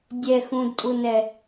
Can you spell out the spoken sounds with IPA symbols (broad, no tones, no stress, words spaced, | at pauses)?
dʲɛxũdtʼunɛ